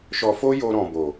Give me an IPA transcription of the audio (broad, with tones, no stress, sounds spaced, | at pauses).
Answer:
ʃ ɔ˧ f o˦ j o˧ ɾ ɔ̃˨ b o˨